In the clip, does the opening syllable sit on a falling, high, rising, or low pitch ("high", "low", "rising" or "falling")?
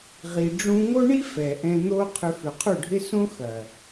low